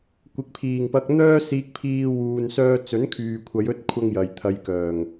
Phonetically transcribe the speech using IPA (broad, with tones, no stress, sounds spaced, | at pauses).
kʷ ɪ˨ k̚ pʰ iː˨˩ ŋ p ɐ˧ k̚ n̪ œː˥ s iː˧ k̚ pʰ iː˧ w uː˧ n s œː˥ t͡s ɵ˨˥ n kʰ yː˨ kʷʰ ɐ˨˧ j ɵ˥ t̚ kʷʰ ɐ˥ ŋ j ɐ˨ j t̪ʰ ɐ˧ j k œː˨˩ ŋ